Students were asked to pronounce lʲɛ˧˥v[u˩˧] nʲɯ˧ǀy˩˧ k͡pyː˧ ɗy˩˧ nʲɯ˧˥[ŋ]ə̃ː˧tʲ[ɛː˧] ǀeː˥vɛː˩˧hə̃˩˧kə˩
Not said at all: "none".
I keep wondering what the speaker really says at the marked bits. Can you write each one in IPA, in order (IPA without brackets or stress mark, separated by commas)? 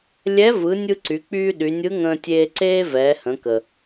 ɯ˩˧, ŋ, eː˧